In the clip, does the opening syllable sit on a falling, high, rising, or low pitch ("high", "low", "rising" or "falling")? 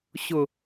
low